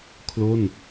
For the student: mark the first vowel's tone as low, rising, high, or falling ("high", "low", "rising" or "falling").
falling